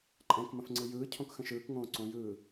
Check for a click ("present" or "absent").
present